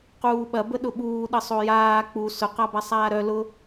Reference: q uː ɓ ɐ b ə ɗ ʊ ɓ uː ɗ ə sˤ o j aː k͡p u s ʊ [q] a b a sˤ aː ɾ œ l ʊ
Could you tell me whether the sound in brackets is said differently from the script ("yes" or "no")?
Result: no